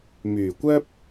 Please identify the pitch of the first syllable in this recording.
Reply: low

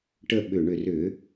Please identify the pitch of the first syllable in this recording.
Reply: falling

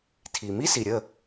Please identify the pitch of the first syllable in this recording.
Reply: low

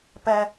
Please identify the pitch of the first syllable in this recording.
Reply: low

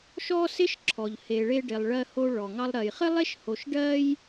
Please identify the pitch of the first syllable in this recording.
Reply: high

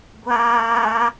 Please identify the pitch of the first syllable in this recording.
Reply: high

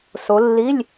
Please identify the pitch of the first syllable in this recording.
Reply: rising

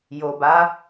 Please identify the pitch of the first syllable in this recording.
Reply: low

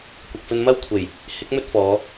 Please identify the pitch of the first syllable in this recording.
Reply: low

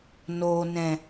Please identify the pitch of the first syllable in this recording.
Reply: low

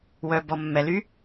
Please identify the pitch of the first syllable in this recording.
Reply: low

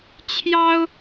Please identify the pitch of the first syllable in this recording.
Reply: high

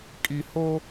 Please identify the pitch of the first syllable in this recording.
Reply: low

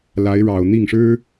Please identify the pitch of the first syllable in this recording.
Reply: rising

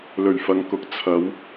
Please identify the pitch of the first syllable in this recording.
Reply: low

